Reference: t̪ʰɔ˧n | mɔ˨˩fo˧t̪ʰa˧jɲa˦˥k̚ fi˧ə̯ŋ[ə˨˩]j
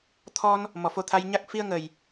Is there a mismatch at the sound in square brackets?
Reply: no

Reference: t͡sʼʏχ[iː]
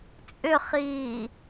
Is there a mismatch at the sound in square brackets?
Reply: no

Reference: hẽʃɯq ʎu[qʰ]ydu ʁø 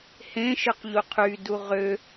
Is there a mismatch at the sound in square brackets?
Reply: no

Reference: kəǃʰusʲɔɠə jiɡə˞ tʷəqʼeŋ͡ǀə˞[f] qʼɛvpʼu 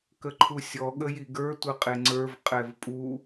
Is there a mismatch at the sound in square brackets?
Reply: yes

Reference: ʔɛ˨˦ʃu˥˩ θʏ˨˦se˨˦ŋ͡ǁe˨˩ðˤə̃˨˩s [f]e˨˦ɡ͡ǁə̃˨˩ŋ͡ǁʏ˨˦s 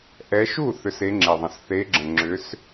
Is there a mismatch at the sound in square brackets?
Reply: yes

